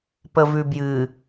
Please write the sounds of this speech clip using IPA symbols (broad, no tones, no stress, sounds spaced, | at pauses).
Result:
p ə v ʉ b j ɨ